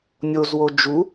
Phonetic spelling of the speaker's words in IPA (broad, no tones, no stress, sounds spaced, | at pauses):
nʲ o z w o d͡ʒ u